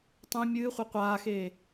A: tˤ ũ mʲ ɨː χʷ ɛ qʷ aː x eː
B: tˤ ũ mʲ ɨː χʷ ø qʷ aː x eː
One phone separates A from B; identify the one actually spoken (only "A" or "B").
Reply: A